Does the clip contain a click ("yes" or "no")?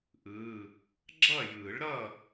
yes